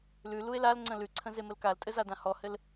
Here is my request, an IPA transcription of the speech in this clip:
l ʉ l u e̯ l a l ŋ͡ǀ ə̃ l ʉ ǀʰ ə̃ z e m ə l k a l tʼ ɘ z a d ã h ɔ h ɘ l

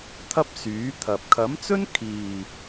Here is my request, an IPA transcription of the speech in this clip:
t̪ʰ ɐ˥ p̚ s yː˨˥ t̪ʰ ɐ˨ p̚ kʰ ɐ˨˥ m t͡s ɵ˥ n kʰ iː˨

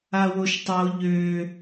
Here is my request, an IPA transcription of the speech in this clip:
a w o ʃ tˤ o ʎ ø

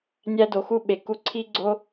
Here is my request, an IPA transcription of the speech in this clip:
nʲ æ˦ d o˨˦ x u˦ ɓ e˨ k u˧ ǀʰ i˦ ɡ͡ǀ o˦

